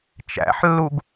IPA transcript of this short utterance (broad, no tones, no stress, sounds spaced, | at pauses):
t͡ʃ æ̰ ħ lː u ɡ